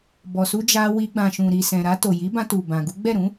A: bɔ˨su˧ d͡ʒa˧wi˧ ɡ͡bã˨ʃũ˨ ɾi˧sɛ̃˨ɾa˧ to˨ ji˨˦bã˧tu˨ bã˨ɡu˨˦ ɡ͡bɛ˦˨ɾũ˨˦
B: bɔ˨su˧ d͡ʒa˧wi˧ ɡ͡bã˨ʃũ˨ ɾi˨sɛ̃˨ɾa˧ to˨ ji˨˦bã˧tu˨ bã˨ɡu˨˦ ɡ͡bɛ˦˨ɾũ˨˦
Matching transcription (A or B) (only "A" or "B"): B